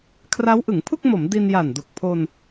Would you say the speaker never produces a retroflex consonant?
yes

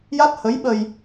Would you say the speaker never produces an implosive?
no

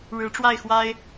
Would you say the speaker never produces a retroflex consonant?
no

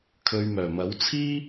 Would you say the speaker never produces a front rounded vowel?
no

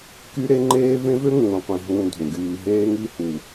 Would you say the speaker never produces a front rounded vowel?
no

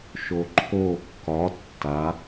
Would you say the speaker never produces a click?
no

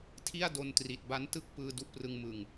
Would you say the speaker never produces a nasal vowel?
yes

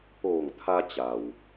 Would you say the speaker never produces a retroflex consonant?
yes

